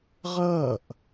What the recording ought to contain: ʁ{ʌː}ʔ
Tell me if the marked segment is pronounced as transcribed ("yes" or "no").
yes